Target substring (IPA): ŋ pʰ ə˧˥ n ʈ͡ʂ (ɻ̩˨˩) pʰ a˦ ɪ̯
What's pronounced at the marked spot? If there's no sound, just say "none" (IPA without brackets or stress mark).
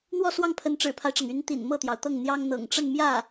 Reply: ɻ̩˨˩